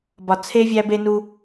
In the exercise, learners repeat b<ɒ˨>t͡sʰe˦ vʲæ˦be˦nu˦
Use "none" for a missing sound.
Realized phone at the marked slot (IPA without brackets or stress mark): ɒ˨